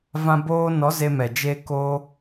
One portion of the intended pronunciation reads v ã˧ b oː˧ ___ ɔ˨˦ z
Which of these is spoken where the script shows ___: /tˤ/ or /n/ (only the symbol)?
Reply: n